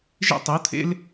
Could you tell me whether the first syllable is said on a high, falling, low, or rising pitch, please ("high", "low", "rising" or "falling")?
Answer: high